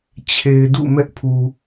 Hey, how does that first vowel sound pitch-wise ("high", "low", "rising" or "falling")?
low